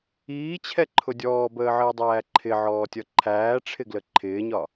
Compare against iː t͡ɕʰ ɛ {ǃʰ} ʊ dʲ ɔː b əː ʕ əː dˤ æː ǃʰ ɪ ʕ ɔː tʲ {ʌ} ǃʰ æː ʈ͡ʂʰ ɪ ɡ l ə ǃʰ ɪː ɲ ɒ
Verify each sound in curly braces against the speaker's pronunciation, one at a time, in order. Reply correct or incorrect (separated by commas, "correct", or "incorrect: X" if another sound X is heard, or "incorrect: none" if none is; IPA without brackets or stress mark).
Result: correct, correct